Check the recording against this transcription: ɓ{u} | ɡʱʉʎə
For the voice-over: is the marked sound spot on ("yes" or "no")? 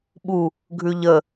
yes